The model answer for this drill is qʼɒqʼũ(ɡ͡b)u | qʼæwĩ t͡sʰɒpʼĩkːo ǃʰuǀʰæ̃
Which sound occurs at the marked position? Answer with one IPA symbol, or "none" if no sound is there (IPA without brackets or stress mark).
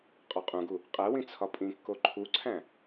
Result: ɡ